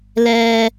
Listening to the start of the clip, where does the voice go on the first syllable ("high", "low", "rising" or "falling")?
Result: high